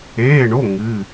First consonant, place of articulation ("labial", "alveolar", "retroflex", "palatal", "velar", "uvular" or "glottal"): retroflex